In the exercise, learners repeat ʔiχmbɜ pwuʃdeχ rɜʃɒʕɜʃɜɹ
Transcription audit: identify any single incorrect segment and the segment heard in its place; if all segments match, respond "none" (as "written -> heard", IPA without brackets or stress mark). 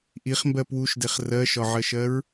none